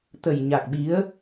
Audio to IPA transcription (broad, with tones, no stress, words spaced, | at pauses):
t̪ə˨˩jɲa˨˩k̚ɓi˨˦ə̯